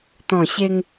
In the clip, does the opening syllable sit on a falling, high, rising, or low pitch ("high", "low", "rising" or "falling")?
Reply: low